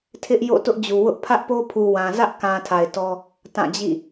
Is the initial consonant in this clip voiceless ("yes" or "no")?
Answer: yes